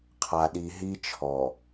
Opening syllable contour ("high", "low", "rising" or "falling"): low